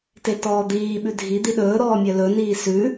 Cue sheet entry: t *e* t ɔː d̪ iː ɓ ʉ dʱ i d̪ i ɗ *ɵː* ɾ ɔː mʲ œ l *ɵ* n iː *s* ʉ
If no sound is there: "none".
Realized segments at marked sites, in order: e, ɵː, ɵ, s

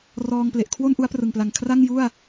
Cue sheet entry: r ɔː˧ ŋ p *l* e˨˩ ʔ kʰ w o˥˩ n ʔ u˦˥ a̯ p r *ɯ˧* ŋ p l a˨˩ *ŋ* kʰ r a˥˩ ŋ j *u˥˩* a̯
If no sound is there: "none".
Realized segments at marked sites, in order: l, ɯ˨˩, ŋ, u˥˩

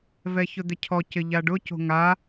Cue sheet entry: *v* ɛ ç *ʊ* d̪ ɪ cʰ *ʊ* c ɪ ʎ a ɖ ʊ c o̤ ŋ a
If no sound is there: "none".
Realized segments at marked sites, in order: v, ʊ, ɔ

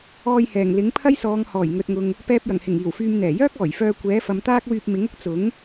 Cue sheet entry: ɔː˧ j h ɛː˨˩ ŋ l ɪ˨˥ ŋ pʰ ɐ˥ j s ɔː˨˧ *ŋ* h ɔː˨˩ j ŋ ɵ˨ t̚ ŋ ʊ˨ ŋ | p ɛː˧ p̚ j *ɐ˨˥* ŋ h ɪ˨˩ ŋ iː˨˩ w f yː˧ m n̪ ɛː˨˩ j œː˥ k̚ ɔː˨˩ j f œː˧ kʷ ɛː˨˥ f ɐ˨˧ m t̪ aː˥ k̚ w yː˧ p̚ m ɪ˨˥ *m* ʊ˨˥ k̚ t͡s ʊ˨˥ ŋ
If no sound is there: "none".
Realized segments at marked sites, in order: ŋ, ɐ˨˩, ŋ

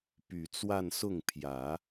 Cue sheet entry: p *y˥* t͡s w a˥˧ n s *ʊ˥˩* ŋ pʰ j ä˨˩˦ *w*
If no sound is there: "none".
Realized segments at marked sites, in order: y˨˩, ʊ˥˩, none

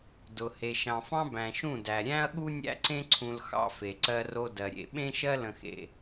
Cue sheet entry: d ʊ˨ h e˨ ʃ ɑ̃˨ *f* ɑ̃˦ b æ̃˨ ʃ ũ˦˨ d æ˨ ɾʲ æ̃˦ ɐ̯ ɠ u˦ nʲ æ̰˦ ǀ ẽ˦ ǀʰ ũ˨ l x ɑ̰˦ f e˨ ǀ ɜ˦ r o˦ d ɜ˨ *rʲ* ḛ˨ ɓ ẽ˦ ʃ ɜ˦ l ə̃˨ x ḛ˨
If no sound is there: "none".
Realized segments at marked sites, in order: f, ɾʲ

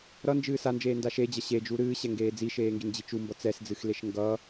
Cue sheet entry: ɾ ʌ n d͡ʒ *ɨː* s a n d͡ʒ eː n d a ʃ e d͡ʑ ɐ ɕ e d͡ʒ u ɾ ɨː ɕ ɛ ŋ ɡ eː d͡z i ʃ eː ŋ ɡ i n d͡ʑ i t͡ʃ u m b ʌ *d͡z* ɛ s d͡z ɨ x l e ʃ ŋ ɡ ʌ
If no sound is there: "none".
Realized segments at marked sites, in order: ɨː, t͡s

